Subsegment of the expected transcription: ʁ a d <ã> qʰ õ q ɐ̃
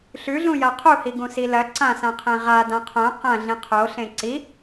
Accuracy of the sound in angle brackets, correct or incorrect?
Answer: correct